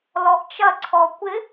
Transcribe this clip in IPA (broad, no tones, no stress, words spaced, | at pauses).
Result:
lɔʔt͡ʃɐ ǀʰɔkʷɪ